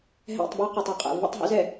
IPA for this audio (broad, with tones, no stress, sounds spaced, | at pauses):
ɦ ɛ̰˦˨ tˤ b o˦ q ɔ˨ tˤ ɛ˦ qʼ ɛ̰˨ v ə̰˦ tˤ ɦ o̰˦ z ɛ˨